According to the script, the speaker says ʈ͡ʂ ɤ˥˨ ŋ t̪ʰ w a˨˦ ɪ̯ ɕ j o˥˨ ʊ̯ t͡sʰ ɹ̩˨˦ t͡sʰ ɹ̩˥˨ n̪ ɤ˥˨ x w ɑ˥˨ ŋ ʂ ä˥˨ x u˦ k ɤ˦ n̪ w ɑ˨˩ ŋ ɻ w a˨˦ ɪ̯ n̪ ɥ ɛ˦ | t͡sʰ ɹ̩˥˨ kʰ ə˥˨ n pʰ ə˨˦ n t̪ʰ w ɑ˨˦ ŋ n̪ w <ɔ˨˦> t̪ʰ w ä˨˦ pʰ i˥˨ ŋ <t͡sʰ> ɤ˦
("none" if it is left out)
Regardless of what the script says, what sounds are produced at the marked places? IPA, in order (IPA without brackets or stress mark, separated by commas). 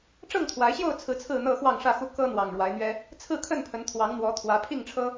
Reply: ɔ˨˦, ʈ͡ʂʰ